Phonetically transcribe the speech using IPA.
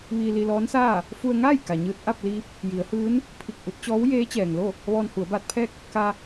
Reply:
ʋ iː˧ l i˧ l ɔː˧˥ n s aː˥˨ | f u˧ ə̯ ŋ aː˥˨ j k a˩ ɲ ɯː˧ t̚ ʔ a˥˨ p̚ l iː˧˥ p̚ | j i˩˧ ə̯ h ɯː˧˥ n | pʰ i˧˩ k̚ ʔ u˧ t̚ t͡ɕ ɔː˧˥ w j eː˧˥ t͡ɕ ɛː˩ ŋ l o˥˨ | ʋ ɔː˧ n h u˩˧ ə̯ b aː˧ t̚ pʰ ɛː˥˨ k̚ | k a˧

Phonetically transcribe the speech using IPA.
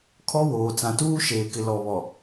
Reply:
kʰ ɔ˦ w oː˨ t͡s ã˨ t uː˦ ʃ eː˨ k ɪ˨ l ɔ˨ β ɔ˨

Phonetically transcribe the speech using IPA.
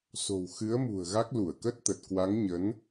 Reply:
s o̤˨˩ w x ɨ˨˦ ə̯ m ṳ˨˩ ə̯ ɣ a˦˥ k̚ l u˧˩ ə̯ k ə˦˥ t̚ t̪ ə˨˩ t̚ k w a˨˦ ŋ ɲ ə˨˦ n

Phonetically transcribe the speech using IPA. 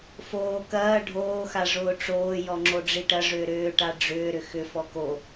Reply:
f oː k ɐː ɖʱ oː x a ʐ ʊː ʈ͡ʂ oː j ɔ ŋ͡ǁ o ɖ͡ʐ i ʈ ɐ ʐ ʏː ɾ ʏː ʈ a ɖ͡ʐ ʏː ɾ ʏ x ʏ f ɔ k o

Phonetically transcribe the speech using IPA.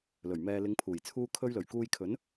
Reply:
l ɵ˨˩ ɥ m ɛː˨ l ɪ˨˧ ŋ pʰ uː˨˩ j t͡sʰ uː˧ kʰ ɵ˧ ɥ l ɵ˨˩ ɥ k uː˧ j kʰ ɵ˨˥ n

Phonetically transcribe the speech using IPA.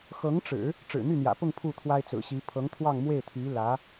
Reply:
x ɤ˧˥ ŋ ʈ͡ʂ ɻ̩˨˩˦ | ʈ͡ʂ ɻ̩˨˩ n̪ y˥˩ n̪ j ä̰˨˩ p ʊ˥˧ ŋ pʰ u˥˩ t̪ʰ w a˥ ɪ̯ t͡s ɹ̩˨˩ ɕ i˧˥ pʰ ɤ˧˥ ŋ t̪ʰ w ɑ˥˧ ŋ m w e˥˩ ɪ̯ t̪ʰ y˧˥ l ä˧˥

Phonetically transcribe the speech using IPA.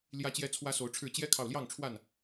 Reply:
l j ä˦ t͡ɕ j ɛ˦ t͡sʰ w ä˦ s o˨˦ ʊ̯ ʈ͡ʂʰ ɻ̩˥˨ t͡ɕ j ɛ˦ kʰ ɑ˨ ʊ̯ l j ɑ˥˨ ŋ ʈ͡ʂʰ w a˥˨ n

